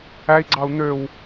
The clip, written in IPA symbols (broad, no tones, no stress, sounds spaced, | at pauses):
æ i̯ ɡ͡ǀ ɑ u̯ n̪ ø w